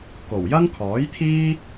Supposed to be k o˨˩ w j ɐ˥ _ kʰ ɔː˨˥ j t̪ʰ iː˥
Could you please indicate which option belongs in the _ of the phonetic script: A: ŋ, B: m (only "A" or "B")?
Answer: A